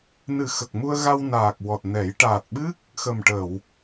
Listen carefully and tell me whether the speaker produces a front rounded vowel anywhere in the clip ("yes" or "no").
no